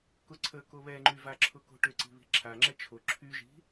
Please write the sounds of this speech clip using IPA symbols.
k ʊ ǀʰ ə k o β ɛ ŋ͡ǃ y v a ǁʰ ʊ k o̤ ʈ ʏ ǀ i̤ β i̤ ǁʰ a ŋ͡ǁ ɛ t͡ʃʰ o ǁʰ y ʒ i̤

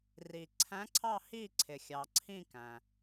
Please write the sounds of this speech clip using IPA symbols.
r i˩ ǀʰ æ̃˨˦ ǀʰ ɑ˦˨ h i˦˨ ǀʰ ɪ˩ xʲ ɑ˩ ǀʰ ĩ˦˨ k æ̃˩

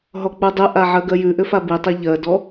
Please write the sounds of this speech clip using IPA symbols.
ɦ ɔ k͡p u dˤ ʏ ʔ a ʕ ɜ ɡ ɜ j ʉ ʔ ʏ f a b i tˤ e ʎ ɜ d ɔ

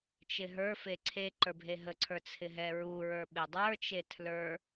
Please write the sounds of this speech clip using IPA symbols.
t͡ʃ ɪ ɦ ə˞ f e ǀʰ e ǃ ə˞ bʱ e ɦ ə ǀʰ ə˞ t͡sʰ ɪ ɦ ɛ ɹ u ɹ ə˞ ɓ ɪ dˤ ə˞ t͡ʃ e tʰ l ə˞

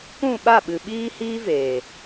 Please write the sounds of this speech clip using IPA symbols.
k ũ˦˨ ɓ a˦˨ ɓ ɨ˨ ɓ iː˦ h iː˦ v eː˨

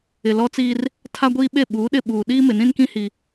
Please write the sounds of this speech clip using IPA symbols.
ɪ˨ l ɔ˦ t͡s iː˦ r | tʰ a˦ ɡʷ iː˦ ɓ e˦˨ ɓ uː˨˦ ɗ ɪ˦˨ ɓ uː˨ ɗ iː˦ m ɪ˨ n ĩ˦ n k ĩ˦ h i˦

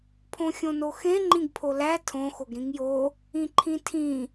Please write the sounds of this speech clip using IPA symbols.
pʰ õ xʲ õ n o x ẽ ŋ͡ǃ ĩ ɡ pʰ o l æ tʰ õ x o ɡ ɾ ĩ ŋ j o | ĩ ǃʰ ĩ tʰ ĩ

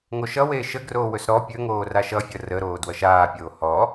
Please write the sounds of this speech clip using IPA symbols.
ŋ o ʃ ʌ w eː ʃ ə ɡ r oː w ɵ s ɾ ɔ pʲ ɵ ŋ oː r a ʃ ʌ fʲ ʌ r ə ɾ oː d w ʌ ʃ aː pʲ oː h ɔ

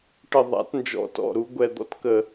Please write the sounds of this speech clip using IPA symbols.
ʈ ə˧˩ ðˤ a̰˨˩˦ t n d͡ʒ ɔ̰˨˦ t ɔ̰˩˧˩ ɾ u˨˩˦ ɡʷ ɛ˧˩ d̪ ɔ̰˨˦ t k ə˧˩

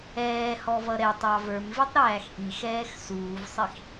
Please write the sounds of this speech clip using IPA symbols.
ɛː h ɔ v ʌ ɾ ɛ tˤ ɑ v ə˞ m v i tˤ ɾ æː x ʔ i x ɛː x s uː v sˤ i x

